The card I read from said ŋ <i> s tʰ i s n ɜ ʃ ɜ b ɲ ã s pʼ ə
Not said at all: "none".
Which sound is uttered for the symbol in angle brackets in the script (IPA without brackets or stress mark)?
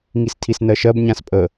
i